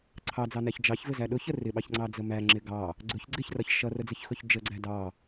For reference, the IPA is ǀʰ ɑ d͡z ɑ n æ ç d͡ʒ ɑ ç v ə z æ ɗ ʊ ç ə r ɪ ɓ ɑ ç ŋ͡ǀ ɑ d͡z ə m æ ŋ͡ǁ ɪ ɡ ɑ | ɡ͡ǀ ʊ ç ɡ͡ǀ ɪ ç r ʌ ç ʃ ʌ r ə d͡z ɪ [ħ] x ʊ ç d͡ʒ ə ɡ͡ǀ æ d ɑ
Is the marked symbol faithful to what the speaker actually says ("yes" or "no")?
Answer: no